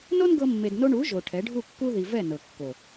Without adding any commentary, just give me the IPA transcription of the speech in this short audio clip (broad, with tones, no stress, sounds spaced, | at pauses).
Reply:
n o˦ n ɡ ɤ˧ mː e˨ d n o˧ ɳ u˨˦ ʒ o˨ ʈʰ ɛ˨˦ ɖʱ u˦˨ kː u˦ ð i˨ v ɛ˦˨ n ɤ˨ kː o˨